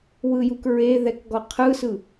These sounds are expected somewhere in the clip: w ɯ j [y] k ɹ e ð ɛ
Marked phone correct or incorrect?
incorrect